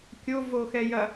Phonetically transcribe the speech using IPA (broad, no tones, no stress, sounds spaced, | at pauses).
kʲ o v o x ɛ j ɐ